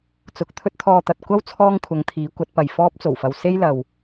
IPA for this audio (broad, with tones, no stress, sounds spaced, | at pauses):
t͡s ʊ˨ k̚ t̪ʰ ɵ˥ t̚ t̪ʰ ɔː˧ t̪ ɐ˨ t̚ kʷ ɐ˥ w t͡sʰ ɔː˥ ŋ kʷʰ ɐ˨˧ ŋ t̪ʰ iː˨˥ kʷ ɐ˨˥ t̚ p ɐ˨ j f ɔː˥ p̚ t͡s o˨˩ w f ɐ˧ w s e˥ j l ɐ˨ w